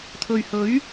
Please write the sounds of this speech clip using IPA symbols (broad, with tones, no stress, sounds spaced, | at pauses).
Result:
t̪ʰ ɵ˨ ɥ h ɵ˨˥ ɥ